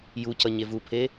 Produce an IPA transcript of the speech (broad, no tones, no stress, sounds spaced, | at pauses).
j u c ʌ ɲ e v u pʰ e